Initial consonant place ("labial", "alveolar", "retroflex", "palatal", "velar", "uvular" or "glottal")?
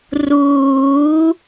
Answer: alveolar